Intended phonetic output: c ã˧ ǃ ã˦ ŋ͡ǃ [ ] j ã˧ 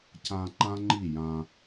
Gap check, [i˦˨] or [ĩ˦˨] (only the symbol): i˦˨